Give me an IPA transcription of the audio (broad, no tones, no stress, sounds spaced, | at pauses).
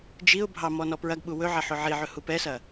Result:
d͡ʒ i ʊ̯ bʱ ɑ m ɔ n ɔ p ɹ ɐ ɡ ɓ u w ɵ ʕ ɐ ħ ʊ ʕ i ʕ ɵ h u p ɛ s ɐ